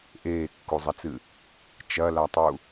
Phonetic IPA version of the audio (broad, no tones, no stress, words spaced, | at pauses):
ʔeːkːuzˤɐt͡sɨ | t͡ʃɐlatˤu